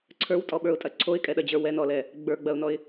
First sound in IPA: ǀʰ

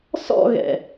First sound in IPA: s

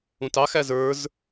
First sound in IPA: ũ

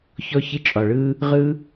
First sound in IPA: ç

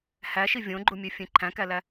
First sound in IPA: h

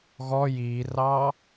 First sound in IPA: ɣ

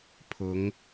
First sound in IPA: pʰ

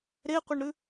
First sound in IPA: ɾ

